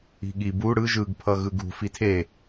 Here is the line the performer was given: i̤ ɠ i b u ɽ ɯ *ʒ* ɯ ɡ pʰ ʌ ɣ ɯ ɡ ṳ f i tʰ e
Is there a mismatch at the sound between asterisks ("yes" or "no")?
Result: no